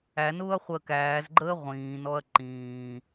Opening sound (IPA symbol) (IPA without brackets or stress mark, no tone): æ